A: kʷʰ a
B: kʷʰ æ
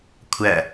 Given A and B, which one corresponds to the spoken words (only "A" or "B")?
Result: B